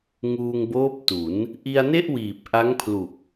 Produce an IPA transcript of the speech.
ŋ uː˧ ŋ b oː˦˥ p̚ t u˩˦ n | ʔ i˧ a̯ n e˥˩ ʔ w iː˨˩ p̚ ʔ a˦˥ ŋ pʰ l u˨˩ k̚

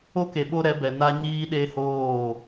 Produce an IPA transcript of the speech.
o˦ k e˨ ɓ o˦ ɾ ɛ˨˦ b ɛ˨ n a˦ ɲ iː˦ ɗ e˦ h oː˦˨

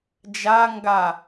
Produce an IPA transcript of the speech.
d͡ʒ a ŋ ɡ a

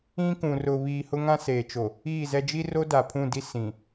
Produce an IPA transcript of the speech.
ĩ˦ k ũ˨ r ʊ˨ β iː˨ h ʊ˦ ŋ ã˦ s eː˨ t͡ʃ o˨ | iː˦˨ z ɛ˦ d͡ʒ i˦ r o˦ d a˨ pʰ ũ˦˨ d i˦ s ĩ˨

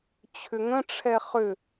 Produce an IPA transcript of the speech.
t͡ɕʰ ʏ ŋ ə̃ ʈ͡ʂʰ ɛ χ ʏ

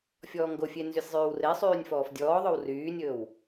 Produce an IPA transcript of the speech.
fʲ ɔː ŋ ɡ o fʲ e n z y sʲ zˤ yː w r e sˤ yː nʲ f ɔː f dʲ ɔː ðˤ ɵ w r yː nʲ ɵː w

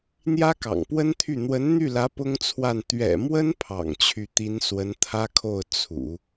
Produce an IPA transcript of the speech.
n̪ j ä˥ k ɑ̰˨˩ ŋ p w ə˥ n t̪ʰ y˥˩ n̪ w ə˧˥ n n̪ y˥˩ l ä˧˥ p ʊ˥ ŋ t͡sʰ w a˥˩ n t̪ ɥ ɛ̰˨˩ m w ə˥ n pʰ ɑ̰˨˩ ŋ t͡ɕʰ y˥˩ t̪ i˧˥ n s w ə˧˥ n t̪ʰ ä˥ kʰ o˥˩ ʊ̯ t͡sʰ ṵ˨˩˦

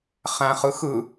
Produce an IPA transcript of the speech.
χ æ̃ χ ɯ x ɯ

